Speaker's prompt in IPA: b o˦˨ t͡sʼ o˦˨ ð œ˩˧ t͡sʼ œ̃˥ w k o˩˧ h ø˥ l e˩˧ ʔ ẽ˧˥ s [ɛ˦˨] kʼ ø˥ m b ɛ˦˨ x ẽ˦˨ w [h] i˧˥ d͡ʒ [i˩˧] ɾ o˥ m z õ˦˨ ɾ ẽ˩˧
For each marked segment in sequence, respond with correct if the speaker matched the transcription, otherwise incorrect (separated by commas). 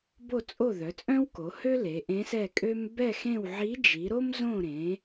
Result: correct, incorrect, correct